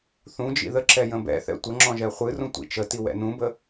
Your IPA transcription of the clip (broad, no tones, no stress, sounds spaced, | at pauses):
θ ũ d͡ʒ ḭ ð ə ǁ ɛ j ə̃ b ɛ̰ θ ɛ̰ tʷ ə ŋ͡ǁ ɔ̃ ʒ ɛ χʷ ɨ r ũ tʷ ḭ t͡ʃ ə t i w ɛ̰ n ũ b ə